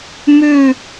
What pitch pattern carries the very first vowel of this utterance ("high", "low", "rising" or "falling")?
falling